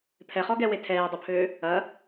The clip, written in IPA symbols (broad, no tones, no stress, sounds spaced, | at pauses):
pʰ ɛ χ ɔ ɡ ɛ w e tʰ ɛː dˤ u pʰ øː | ɐ